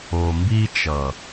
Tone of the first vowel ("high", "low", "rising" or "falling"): low